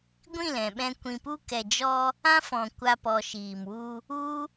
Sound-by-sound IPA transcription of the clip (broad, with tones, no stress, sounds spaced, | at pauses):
ɡʷ ĩ˦˨ l ɛ̃˨ ɓ ɛ̃˧ kʷ ĩ˨ p u˧ k ɛ˨ d͡ʒ ɔ˧ | ã˦ f ɔ̃˨ kʷ a˧ p ɔ˨ ʃ iː˨ m w u˧ | u˦